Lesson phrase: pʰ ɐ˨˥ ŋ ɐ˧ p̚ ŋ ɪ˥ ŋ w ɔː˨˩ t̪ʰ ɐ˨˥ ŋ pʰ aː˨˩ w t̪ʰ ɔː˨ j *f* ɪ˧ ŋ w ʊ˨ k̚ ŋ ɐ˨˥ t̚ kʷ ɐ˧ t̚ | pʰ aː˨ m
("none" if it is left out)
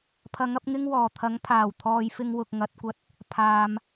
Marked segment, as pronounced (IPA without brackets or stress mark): f